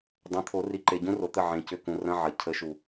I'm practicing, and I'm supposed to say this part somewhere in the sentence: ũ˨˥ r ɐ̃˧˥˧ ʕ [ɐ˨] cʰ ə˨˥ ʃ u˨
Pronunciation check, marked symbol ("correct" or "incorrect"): correct